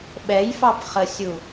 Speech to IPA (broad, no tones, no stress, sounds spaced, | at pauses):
ɓ ɛ j f ɑ p χ ə sʲ u